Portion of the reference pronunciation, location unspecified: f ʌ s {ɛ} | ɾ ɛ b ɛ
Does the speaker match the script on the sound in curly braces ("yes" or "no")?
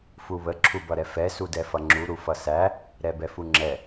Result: no